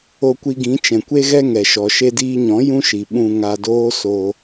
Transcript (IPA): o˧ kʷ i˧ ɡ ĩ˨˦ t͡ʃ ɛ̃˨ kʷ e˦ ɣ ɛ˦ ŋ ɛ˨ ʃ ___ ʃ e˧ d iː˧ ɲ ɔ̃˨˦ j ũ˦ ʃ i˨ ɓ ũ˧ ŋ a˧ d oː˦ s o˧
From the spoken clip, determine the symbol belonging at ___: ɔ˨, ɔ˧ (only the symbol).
ɔ˨